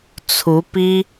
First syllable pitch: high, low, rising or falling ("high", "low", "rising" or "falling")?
rising